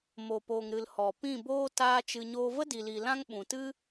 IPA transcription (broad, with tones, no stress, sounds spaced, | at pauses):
m o˨ p oː˨ ŋ ɾ ɨ˨ l h ɔ˨ p ĩ˦˨ b oː˦ t aː˦ t͡ʃ ɨ˧ ɲ oː˦ v ə˦ d i˨ l i˨ l ã˦ ŋ ɓ ũ˨ t ɨ˦